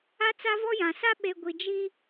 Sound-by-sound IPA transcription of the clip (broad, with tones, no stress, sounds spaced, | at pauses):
a˦ t͡s a˦ v ɔ˦ j ã˨ s a˦ ɓ e˨ ɡʷ i˨ d͡ʒ i˦